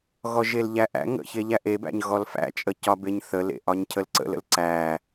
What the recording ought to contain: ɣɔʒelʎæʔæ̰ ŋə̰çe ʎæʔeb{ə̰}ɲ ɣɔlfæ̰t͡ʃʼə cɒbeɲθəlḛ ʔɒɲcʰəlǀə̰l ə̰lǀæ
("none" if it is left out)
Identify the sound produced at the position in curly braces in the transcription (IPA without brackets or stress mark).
æ̰